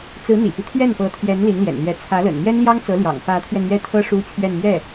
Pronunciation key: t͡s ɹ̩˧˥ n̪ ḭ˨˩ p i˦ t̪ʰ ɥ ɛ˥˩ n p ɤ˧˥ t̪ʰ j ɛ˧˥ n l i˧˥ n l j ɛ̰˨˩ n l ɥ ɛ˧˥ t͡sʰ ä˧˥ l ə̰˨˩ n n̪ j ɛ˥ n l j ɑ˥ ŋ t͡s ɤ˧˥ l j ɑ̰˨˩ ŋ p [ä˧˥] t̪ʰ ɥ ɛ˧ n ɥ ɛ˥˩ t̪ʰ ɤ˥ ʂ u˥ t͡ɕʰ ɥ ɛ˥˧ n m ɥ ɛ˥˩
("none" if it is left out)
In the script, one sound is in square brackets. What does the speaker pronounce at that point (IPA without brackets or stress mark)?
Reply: ä˧˥